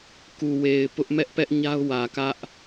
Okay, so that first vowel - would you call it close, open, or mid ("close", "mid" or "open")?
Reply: close